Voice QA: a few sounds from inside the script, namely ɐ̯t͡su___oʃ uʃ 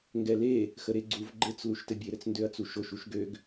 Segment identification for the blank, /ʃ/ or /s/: ʃ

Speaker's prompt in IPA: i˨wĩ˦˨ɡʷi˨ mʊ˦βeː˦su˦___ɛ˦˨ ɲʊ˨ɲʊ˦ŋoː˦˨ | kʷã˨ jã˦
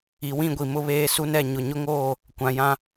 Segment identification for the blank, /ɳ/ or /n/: n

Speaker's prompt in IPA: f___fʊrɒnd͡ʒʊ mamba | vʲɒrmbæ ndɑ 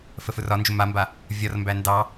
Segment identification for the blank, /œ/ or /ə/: ə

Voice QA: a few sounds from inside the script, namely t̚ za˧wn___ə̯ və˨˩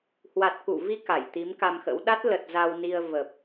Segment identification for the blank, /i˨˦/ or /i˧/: i˧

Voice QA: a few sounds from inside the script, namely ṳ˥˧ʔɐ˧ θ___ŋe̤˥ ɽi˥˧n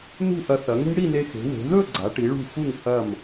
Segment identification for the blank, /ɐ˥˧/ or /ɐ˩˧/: ɐ˩˧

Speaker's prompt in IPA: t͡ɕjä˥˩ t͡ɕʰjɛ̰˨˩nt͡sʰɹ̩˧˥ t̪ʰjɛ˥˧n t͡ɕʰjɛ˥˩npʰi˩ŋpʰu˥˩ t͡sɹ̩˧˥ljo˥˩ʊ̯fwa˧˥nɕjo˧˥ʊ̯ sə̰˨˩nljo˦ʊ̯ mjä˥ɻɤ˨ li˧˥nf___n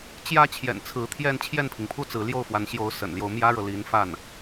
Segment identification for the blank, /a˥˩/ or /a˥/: a˥˩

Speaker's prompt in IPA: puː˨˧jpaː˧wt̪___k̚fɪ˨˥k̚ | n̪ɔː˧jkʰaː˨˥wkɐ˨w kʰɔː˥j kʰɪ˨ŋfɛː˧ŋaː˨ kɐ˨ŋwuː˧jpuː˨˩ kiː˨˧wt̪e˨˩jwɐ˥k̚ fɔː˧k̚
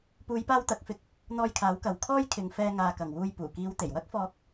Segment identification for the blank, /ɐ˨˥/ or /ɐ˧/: ɐ˨˥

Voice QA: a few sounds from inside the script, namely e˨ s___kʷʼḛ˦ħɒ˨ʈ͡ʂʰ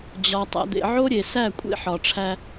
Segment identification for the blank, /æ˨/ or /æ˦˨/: æ˦˨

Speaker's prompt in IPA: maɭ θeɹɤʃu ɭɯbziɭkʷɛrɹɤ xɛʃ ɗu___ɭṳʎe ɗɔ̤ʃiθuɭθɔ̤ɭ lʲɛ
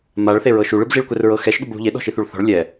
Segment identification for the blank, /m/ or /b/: b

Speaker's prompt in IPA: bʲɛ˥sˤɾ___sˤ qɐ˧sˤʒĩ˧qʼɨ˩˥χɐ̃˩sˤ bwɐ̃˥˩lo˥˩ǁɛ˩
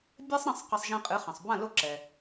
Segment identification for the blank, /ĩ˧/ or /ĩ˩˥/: ĩ˧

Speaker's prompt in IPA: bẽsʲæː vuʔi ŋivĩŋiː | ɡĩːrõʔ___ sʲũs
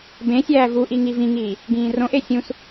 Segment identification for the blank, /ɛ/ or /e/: e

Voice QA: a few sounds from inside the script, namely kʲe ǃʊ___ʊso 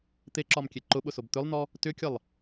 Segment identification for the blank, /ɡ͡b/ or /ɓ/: ɓ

